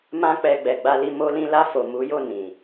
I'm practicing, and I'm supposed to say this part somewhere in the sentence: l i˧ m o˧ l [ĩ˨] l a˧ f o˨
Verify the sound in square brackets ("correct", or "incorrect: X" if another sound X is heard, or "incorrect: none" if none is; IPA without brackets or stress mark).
incorrect: ĩ˧